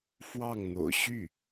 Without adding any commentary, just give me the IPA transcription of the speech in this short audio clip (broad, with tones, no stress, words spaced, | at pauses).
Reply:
fwɑ˥˩ŋn̪o̰˨˩ʊ̯ ɕy˥˩